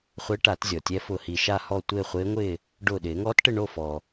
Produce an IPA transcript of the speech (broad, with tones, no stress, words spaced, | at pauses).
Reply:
χʷe˧˥ʈa˨˩˦tzʲɔ˩tʲɛ˧˥ fʊ˧˩hi˧˩ ʃa˥˨hɔ˥˨ tʷɪː˥˨χʷɪː˧˥ŋʷɪː˥˨ | ɖʊː˧˩ ɗɪː˨˩˦ŋɔː˧˥tʈɪ˥˨ ɳo˥˨ fɔː˩